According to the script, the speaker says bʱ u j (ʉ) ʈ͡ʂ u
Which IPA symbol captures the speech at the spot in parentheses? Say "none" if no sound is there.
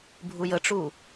ə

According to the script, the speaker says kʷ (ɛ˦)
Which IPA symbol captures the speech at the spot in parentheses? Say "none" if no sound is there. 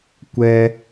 ɛ˦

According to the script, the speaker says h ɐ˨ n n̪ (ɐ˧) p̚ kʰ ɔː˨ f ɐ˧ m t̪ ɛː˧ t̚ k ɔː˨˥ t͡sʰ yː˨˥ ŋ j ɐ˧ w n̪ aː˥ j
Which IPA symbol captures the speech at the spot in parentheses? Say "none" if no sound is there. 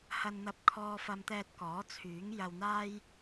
ɐ˨˥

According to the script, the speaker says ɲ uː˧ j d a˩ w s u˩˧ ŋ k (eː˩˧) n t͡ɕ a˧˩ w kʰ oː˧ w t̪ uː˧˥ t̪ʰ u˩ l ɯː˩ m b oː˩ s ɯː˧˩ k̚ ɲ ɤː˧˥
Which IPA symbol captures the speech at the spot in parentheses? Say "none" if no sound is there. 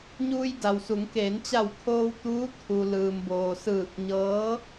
eː˩˧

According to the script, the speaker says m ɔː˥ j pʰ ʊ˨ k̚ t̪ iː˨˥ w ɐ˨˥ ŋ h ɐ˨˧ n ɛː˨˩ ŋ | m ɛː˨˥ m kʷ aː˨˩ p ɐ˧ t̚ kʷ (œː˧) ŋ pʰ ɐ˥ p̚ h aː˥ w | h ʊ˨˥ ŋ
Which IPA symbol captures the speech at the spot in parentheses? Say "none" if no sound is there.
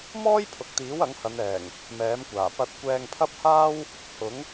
ɛː˧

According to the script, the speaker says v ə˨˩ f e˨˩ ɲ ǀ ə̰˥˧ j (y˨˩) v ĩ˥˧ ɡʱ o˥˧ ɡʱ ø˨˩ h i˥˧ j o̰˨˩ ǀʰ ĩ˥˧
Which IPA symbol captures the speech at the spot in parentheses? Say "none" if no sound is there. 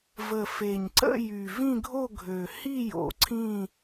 y˨˩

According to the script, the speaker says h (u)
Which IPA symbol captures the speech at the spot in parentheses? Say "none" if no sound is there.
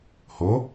o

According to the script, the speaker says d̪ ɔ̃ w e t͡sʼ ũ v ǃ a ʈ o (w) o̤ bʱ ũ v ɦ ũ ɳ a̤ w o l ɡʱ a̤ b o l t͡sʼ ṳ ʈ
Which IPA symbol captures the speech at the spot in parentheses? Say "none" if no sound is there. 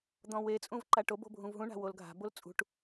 b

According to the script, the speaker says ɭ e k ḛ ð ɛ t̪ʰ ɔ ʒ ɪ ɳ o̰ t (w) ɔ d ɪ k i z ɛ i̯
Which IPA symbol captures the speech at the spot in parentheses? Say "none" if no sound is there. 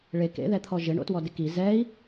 w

